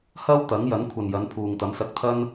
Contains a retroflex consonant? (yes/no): no